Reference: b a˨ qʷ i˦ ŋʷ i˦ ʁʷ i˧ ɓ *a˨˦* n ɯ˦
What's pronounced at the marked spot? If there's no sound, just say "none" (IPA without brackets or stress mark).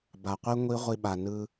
a˨